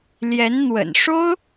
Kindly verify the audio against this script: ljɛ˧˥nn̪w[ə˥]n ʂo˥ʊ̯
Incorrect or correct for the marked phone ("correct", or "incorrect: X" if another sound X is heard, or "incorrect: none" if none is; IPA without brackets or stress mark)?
incorrect: ə̰˨˩